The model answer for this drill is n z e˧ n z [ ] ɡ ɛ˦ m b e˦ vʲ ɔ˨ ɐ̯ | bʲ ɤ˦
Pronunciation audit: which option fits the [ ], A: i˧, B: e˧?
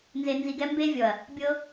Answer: A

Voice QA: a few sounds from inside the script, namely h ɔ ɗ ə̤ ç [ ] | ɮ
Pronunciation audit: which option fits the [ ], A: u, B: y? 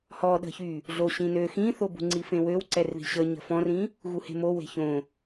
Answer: B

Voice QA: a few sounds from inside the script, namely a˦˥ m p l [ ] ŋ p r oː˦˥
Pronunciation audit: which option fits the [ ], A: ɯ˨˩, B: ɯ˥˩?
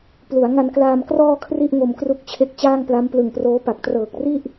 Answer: A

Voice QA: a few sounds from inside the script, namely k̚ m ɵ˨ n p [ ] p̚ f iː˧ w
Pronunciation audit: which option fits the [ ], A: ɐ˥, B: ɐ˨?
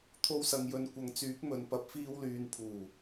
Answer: B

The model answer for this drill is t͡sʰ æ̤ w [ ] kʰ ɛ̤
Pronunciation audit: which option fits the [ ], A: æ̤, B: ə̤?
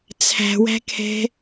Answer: A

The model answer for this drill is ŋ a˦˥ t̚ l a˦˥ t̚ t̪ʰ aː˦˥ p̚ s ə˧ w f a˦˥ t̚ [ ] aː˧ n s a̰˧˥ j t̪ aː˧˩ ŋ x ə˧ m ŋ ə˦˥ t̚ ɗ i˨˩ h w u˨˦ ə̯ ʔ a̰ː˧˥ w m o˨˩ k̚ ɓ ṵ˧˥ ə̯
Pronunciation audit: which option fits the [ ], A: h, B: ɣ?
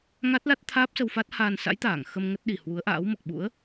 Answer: A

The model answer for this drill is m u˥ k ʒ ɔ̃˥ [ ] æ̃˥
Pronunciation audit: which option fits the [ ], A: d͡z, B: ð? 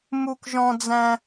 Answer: A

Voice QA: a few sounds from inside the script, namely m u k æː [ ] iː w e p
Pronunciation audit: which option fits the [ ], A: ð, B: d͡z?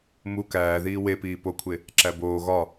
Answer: A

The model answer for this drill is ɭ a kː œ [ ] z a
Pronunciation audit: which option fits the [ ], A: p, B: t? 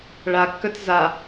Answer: B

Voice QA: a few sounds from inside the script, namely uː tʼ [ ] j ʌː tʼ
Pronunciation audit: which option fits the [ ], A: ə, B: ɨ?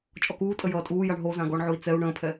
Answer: A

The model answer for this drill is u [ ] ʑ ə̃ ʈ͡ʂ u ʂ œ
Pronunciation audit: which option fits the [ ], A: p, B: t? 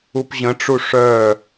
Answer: A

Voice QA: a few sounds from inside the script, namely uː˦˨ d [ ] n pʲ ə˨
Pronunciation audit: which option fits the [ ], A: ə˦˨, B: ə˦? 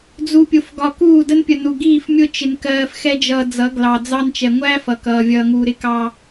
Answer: B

